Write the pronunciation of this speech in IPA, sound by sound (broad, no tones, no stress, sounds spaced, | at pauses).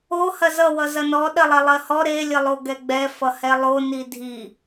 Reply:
o h ɐ z ʌ w ʌ z ɐ n ɔ ɗ ɐ lˠ ɛ lˠ ɜ h ɔ ɾ e lʲ ə lˠ o ɡ ɛ ɡ͡b ɛ f ʌ h ɛ lˠ o n i dʱ i